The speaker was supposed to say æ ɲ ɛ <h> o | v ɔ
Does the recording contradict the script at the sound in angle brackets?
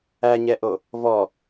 yes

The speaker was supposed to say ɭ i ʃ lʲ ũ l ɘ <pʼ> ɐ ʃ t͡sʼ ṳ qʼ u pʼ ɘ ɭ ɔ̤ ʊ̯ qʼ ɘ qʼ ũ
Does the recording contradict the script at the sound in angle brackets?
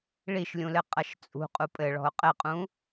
yes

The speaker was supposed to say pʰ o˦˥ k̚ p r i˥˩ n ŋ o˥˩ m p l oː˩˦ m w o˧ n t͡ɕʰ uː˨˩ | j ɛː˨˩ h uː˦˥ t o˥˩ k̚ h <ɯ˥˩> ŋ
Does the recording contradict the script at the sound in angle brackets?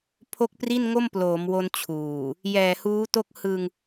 yes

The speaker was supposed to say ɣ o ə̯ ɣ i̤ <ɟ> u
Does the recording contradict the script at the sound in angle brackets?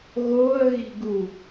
yes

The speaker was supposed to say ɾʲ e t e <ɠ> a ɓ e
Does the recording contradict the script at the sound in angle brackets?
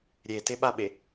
yes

